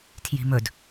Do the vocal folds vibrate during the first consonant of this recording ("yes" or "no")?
no